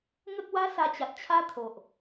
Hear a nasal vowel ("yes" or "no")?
no